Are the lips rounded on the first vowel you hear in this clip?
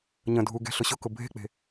no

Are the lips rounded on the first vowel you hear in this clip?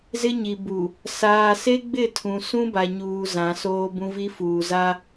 no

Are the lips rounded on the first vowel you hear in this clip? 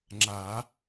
no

